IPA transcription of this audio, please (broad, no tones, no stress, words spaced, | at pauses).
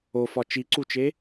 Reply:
ofɒ t͡ʃiǀut͡ʃe